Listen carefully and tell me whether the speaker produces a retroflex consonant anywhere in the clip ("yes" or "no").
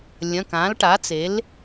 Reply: yes